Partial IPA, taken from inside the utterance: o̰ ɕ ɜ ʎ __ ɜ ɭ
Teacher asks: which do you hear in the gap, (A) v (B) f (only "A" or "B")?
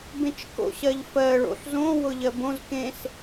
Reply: B